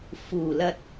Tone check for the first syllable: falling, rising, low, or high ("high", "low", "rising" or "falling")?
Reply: low